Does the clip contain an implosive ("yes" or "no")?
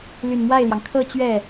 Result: no